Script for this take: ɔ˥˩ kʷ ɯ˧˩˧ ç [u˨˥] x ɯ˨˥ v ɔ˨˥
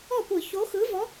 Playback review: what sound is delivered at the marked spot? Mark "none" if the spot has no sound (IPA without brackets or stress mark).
o˨˥